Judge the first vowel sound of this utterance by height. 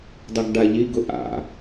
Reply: high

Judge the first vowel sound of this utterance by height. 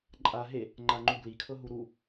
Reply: low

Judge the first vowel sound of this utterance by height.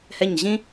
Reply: mid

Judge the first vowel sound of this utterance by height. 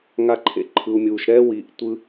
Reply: low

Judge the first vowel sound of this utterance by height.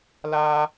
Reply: low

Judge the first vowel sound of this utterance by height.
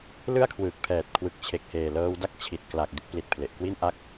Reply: high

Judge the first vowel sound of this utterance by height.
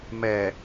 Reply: mid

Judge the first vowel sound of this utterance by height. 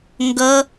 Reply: mid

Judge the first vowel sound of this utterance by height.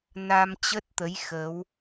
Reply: low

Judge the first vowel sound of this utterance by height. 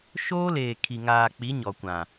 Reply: mid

